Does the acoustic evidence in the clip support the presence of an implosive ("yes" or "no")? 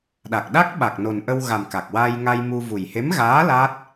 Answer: yes